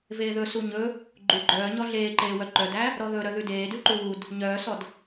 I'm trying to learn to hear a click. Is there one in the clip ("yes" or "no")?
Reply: yes